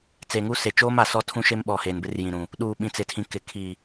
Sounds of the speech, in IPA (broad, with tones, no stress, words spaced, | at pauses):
t͡se˨ŋu˦ se˨t͡ʃoː˦ma˨sɔ˦ tʰũ˦ʃe˦mɓɔ˨ heː˨nbɪ˦rjĩ˨ɾũ˨ | ɗuː˨ɓĩ˨t͡sɪ˨tʰĩ˨ kɪ˨ kʰi˨